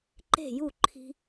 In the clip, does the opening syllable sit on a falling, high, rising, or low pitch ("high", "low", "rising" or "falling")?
falling